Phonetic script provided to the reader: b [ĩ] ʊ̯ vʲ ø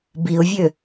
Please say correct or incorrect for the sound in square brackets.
incorrect